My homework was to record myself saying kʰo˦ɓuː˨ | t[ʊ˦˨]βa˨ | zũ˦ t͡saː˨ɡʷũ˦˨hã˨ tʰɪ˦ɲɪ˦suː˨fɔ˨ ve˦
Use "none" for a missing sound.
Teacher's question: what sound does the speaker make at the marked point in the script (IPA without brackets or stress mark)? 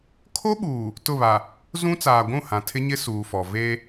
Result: ʊ˦˨